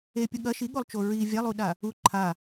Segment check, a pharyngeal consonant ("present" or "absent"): absent